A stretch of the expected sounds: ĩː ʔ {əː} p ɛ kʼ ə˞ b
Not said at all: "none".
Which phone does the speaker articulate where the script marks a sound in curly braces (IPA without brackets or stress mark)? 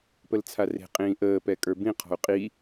əː